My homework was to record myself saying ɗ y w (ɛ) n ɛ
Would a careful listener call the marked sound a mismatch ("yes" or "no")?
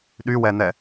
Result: no